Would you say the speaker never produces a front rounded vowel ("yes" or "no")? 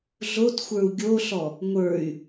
no